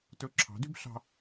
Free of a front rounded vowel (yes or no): no